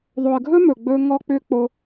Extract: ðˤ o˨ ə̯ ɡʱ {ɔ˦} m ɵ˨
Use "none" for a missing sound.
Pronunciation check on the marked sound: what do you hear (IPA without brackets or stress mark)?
ɵ˦